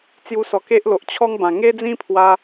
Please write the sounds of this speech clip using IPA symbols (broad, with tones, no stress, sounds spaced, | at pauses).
t͡s j u˧ s ɔ˨˩ k e˦ ʔ l o˨ ʔ t͡ɕʰ ɔ˦ ŋ b ã˨˩ ŋ e˦ d͡z ĩ˦ pʰ w a˧